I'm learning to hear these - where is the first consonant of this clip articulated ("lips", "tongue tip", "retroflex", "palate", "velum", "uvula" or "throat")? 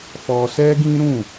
lips